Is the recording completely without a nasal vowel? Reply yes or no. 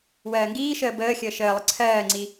yes